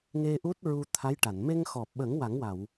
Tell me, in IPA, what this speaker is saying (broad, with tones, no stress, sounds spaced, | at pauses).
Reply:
ŋ e˧ ʔ u˦˥ t̚ ɹ u˧ t̪ʰ a˧˥ j ʈ a˨˩˨ n m e˧ ŋ x ɔ˨˩ p̚ ɓ ə˨˩˦ ŋ w a˨˩˦ ŋ w a˨˩˨ w